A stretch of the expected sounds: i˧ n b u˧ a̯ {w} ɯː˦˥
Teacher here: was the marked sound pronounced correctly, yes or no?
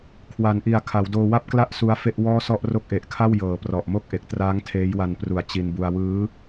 yes